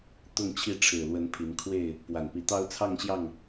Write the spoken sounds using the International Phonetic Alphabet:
t̪ ʊ˥˨ ŋ t͡ɕʰ i˥˨ ʈ͡ʂʰ ɻ̩˨˩ l w ə˨˦ n pʰ i˨˦ n kʰ w e˥˨ ɪ̯ | p w a˨˩ n p i˨˦ t̪ ɑ˦ ʊ̯ t͡sʰ ɑ˥˨ ŋ ɕ j ɑ˥˨ ŋ

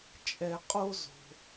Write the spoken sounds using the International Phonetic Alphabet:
t͡ʃʼ ɛ˧ qʼ o˦ z o̤˧

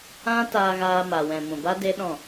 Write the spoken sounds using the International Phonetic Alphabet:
ã˦ t aː˧ ɣ aː˧ m a˨ w ɛ̃˨ m ũ˨ b a˦ d e˦ ɗ ɔ̃˦˨

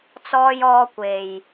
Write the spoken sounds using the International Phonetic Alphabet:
t͡s ɔː˧ j ɔː˧ kʷ e˨ j

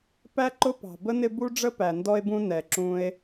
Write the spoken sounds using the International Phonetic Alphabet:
p æ˥ ǃ ʊ˥ p ɑ̤˩ b ə˥ n ɪ˦ b u˥ ɖ͡ʐ ə˥ p æ˩ n d ɔ˦ e̯ b ũ˦ n ɛ˩ ǁ ũ˨ e̯

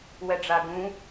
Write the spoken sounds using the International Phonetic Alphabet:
w ɛ ɖ͡ʐ a ɡ ũ

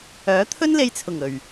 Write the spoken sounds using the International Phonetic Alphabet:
œː˨˥ t̪ʰ ɵ˥ n l e˧ j t͡sʰ ʊ˨˩ ŋ ɵ˨˩ ɥ

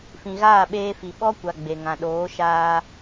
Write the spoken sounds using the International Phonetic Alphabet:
f ĩ˨ ɣ aː˦˨ ɓ eː˧ f i˨ ɓ ɔ˦ kʷ a˨ ɡ͡b e˨ ŋ ã˨ ɗ oː˨˦ ʃ aː˧

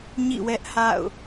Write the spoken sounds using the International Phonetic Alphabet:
ɲ ḭ˦˨ w ɛ˦ ʔ h a̰˦˨ ʊ̯

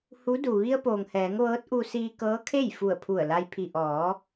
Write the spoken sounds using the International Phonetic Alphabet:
h u˧˥ d u˩ ʋ i˧ ə̯ p oː˩ ŋ h ɛː˩˧ ŋ ʋ ɤː˧˥ t̚ ʔ u˧ s iː˧ k ɤː˧˥ kʰ e˥˨ j f u˧˩ ə̯ pʰ u˧˩ ə̯ l a˧ j pʰ i˩ ʔ ɔː˩˧

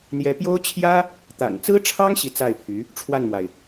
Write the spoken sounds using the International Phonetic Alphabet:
n̪ j ɛ˧˥ p j o˥ ʊ̯ t͡ɕʰ j ä˥ | t̪ a̰˨˩ n t͡s ɹ̩˥ ʈ͡ʂʰ ɑ˥ ŋ ɕ i˥˧ t͡s a˥˩ ɪ̯ pʰ y˧˥ | ʈ͡ʂʰ w a˥˩ n m w a˩ ɪ̯

